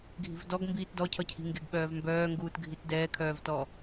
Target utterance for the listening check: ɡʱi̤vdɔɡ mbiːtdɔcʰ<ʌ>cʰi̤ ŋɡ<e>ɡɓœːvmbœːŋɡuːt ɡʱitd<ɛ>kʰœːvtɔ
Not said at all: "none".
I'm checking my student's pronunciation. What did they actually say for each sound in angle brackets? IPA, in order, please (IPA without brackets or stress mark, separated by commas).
ʌ, e, ɛː